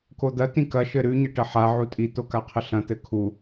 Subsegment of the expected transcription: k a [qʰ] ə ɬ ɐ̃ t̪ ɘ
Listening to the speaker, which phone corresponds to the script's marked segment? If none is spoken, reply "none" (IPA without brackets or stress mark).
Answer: qʰ